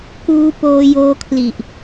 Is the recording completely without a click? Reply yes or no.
yes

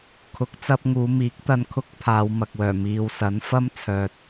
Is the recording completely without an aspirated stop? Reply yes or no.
no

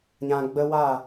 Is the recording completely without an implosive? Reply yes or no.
yes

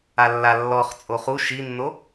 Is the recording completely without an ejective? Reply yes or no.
no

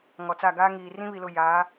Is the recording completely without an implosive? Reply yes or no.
yes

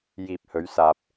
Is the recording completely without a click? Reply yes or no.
yes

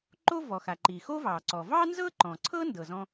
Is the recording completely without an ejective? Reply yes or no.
yes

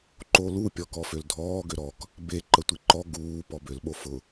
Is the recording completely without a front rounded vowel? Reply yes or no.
no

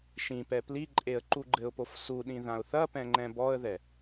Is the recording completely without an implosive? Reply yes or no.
no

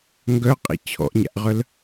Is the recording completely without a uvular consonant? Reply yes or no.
no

